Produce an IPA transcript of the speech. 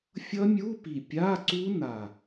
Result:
fʲʌ˦˥mʲu˧˥˧pi˨˩ pʲa˧˥˧ǀu˦˥na˨˩

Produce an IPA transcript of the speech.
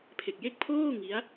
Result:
pʰe˨˩k̚je˦˥k̚pʰoː˥˩ ŋi˦˥a̯

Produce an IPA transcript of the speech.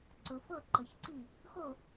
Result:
ǀʊ˨fɤ˦˨ǃə˨çǀi˦˨ | xo˦˨

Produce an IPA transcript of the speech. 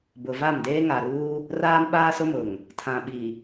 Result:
bʊ˨va˦˨mdeː˦ ŋa˨ɾuː˦ | raː˦mɓaː˦sʊ˦mʊ˨ŋ | tʰã˨ɓi˨

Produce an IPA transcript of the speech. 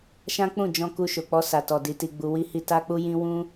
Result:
ʃã˦k͡pũ˦˨d͡ʒɔ̃˧ ku˧ʃo˨k͡pɔ˧ sa˨tɔ˨ di˧ti˧ɡ͡bu˧ wi˧hi˧ ta˦k͡pu˦jĩ˦ wũ˦

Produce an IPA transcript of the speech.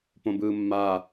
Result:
põbɯːmːa

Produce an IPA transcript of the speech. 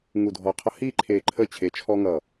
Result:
ŋu˧˩dʱɔ˧˩qʰʌ˦ hi˥˩ ǃʰe˧˩ǃʰə˥˩ t͡ɕʰe˧˩t͡ʃʰɔ˦ŋʌ˧˩

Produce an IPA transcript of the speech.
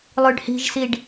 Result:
lˠʉɖhi̤ʒsiɖ

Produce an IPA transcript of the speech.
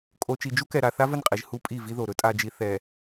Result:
kʼo˨ t͡ʃi˨d͡ʒu˦kɛ˨ ɾa˨ θa˦və˦˨nqʼi˨ʒ hu˦pʼi˦˨vi˦ðo˨ ɾɵ˦tʼa˨d͡ʒi˨ θɛ˨

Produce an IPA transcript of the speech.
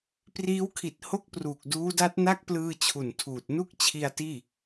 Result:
priː˦˥wkʰi˨˩t̚ ho˥˩k̚pruː˨˩k̚ duː˦˥da˦˥t̚na˥˩k̚plɯː˧ t͡ɕʰu˨˩ntʰuː˨˩t̚ nu˥˩k̚t͡ɕʰi˧a̯ tiː˥˩

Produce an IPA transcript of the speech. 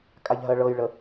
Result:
kʼaʎɦɜɭɤjɭə

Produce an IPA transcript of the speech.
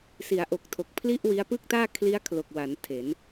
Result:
si˩˦a̯ʔo˨˩k̚tʰo˨˩k̚ pʰli˥˩ʔwi˦˥a̯ pɯ˥˩k̚taː˥˩ kʰli˦˥a̯kʰlo˨˩k̚wa˩˦n tʰe˩˦n

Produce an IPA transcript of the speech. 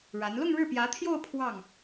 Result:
ɻa˧˥n lʊ˥˧ŋɻɻ̩˥˩ pjä˧˥t̪ʰjo˥˧ʊ̯ pʰwɑ˥˩ŋ

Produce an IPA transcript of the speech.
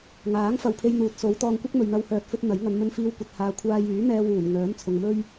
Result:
ŋaː˨˥ŋ fɐ˨wpʰe˧jn̪uː˨t̚ so˨˧wt̪ɔː˧ŋkʷɐ˥k̚mɵ˨ɥ n̪ɐ˧whœː˨t̚fɵ˧t̚ n̪ɐ˨˥j ŋɐ˨˧nmɵ˧nfiː˧wkʷɐ˨t̚ haː˨kʷʰaː˧jyː˨˥ n̪ɛː˧wuː˨˩n ŋœː˨˥mt͡sʰʊ˨ŋmɵ˥ɥ

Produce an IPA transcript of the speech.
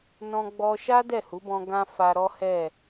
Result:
nɔ̃˧ɡ͡bɔ˧ʃa˦ dɛ˦˨hu˨˦bɔ̃˧ ɡã˦ fa˧ɾɔ˦hɛ˦˨

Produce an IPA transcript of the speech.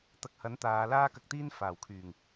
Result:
t̪ɐ˨˥k̚hɐ˨˥n t̪aː˨˧laː˥kɐ˧k̚t̪iː˥n faː˨˩wkʰyː˨˩ŋ

